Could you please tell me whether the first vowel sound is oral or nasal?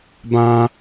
nasal